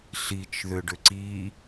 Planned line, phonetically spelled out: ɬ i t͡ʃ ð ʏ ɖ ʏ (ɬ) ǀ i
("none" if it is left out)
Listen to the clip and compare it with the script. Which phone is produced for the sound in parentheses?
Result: none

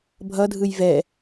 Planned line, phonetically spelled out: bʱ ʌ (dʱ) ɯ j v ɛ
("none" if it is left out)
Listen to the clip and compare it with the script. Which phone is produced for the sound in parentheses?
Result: dʱ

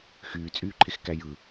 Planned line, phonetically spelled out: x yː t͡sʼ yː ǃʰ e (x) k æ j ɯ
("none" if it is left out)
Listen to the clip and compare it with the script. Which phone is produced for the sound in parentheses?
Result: x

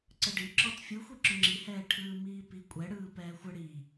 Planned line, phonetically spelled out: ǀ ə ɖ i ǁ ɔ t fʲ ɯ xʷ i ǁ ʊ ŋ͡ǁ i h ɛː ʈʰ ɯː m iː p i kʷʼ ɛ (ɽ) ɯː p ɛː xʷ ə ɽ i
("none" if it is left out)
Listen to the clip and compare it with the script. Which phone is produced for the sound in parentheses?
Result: ɽ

